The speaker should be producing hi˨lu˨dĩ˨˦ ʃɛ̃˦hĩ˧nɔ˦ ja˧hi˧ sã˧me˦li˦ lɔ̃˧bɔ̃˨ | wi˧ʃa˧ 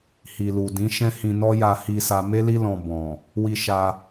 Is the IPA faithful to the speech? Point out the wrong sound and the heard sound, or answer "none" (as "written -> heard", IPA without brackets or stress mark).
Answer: ã˧ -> a˧